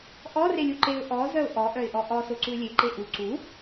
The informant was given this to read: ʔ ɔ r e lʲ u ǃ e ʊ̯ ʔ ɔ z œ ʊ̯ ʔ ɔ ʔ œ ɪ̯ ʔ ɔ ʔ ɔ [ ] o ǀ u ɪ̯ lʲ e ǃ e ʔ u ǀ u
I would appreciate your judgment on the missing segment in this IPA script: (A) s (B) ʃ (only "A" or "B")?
A